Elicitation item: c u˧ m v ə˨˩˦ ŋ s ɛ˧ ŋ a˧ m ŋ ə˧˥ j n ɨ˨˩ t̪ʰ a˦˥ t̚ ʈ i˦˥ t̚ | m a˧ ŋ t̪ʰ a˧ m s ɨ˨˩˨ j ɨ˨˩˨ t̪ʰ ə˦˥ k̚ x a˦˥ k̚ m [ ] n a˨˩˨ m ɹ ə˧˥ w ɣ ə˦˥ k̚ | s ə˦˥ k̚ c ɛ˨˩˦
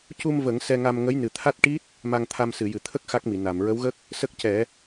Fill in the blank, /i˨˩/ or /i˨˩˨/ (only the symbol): i˨˩˨